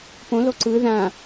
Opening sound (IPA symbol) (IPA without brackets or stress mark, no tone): p